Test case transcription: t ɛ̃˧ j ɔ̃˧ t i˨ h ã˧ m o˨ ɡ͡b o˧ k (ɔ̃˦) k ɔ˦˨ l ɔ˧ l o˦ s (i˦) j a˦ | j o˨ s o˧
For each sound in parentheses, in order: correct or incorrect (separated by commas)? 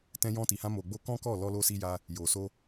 correct, correct